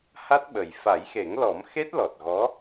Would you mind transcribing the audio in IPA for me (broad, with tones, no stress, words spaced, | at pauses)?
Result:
ha˦˥t̚ɓə˨˩j fa˨˩˦jxe˨˩˦ŋlɔ˨˩˦m xe˦˥t̚ lɔ˨˩t̚ɣɔ˧˥